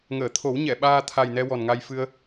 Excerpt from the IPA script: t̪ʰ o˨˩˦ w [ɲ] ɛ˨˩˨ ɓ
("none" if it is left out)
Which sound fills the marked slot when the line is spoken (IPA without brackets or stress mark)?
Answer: ɲ